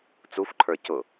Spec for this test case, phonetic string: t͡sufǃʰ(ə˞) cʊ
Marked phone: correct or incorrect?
correct